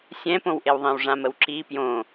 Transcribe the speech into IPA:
sʲ ɛ̃ p õ w ʔ e w ðˤ ĩ w ʐ ã m ə w ǁ i p j õ

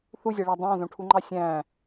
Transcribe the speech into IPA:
θ u zʲ ɛ ɭ æ dˤ ɑ̃ z õ ʈʰ u ŋ͡ǃ ɑ sʲ æ̃ː

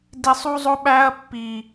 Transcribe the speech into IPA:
d i˨˩ sˤ u˦ zˤ o˦ ɓ æ˦ ɐ̯ pː i˨˩

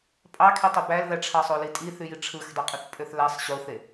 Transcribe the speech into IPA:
pʼ ɑ kʰ e tˤ o b æ l ð æ ʈ͡ʂʰ ɑ sˤ o l i tʼ i θ y j i ʈ͡ʂʰ ɯ x dˤ ø qʼ ɯ θ pʼ ø θ l æ sˤ ɕ o θ e

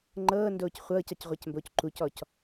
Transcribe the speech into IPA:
ŋ͡ǃ ɤː n d oː c χʷ ɤː c ɑ c ʁʷ a c m b oː c ǃ u c ɔ c

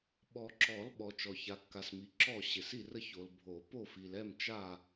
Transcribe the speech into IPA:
ɓ ɔ˨ ǁ ɔ˨˩˦ l ɓ ɔ˨ t͡ʃ ɔ˨ ç a˨ kː a˨ s m i˨ ǁ ɔ˦˨ ɕ ɪ˨ s i˦˨ r ə˦˨ ç o˨ l bʱ o˨˩˦ p o˦˨ f i˨ l ɛ˦˨ m t͡ʃ a˦˨

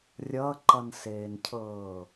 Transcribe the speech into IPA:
rʲ ʌ ǃ ʌ n s eː n cʰ ɤː

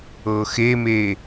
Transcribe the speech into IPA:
ɤ x e m eː

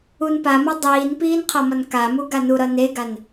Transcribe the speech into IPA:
u n p a m ʌ dˤ iː n p iː n qʰ ʌ m ʌ n k a m u ɡ a n u ɾ ʌ n e ɡ a n

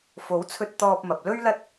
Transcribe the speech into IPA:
f o˨˥ w t͡sʰ ɵ˧ t̚ t̪ ɔː˧ p̚ m ɐ˨ p̚ l ɵ˥ ɥ l ɐ˥ t̚

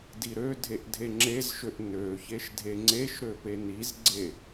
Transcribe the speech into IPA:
d i ɾ ø dʱ e ʔ dʱ e ŋ͡ǁ e z ʃ ø ʔ n ø ç e ʃ dʱ e ŋ͡ǀ e ʃ ɾ ø p e n i z ɡ͡ǀ e

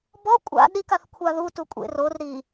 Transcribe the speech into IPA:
b ɔ kʷʼ a̰ ɗ i k a θ kʷʰ a ð u t u kʷʼ ḛ r o r ɾ i

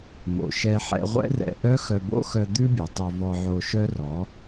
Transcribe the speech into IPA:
m o̰˨ ʃ ɛ˧ ħ ɛ̰˧ ʁʷ ɛ̰˦ r ɛ̰˧ ʔ œ˦ x œ˧ b o̰˦ x œ˧ d̪ ʉ˦ bʲ ø˨ tˤ œ˧ v ɔ˧ ʕ o˧ ʃ œ˦ r ɔ˨˦

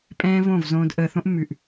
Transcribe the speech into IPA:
pʼ ɛ̃ː˦ v õ˦˨ v z õː˧ d ʔ əː˨ θ õ˧ ʔ mː ʉ˨ ʔ

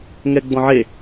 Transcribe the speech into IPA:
ŋ ɛ ɡ͡b ɔ̃ ʕ e

